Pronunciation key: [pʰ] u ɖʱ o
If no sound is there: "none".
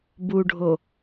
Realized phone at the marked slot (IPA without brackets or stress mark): b